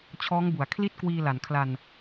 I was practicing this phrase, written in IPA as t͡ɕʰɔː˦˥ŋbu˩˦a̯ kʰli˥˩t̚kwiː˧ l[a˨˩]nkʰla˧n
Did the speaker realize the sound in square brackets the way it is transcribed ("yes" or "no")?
yes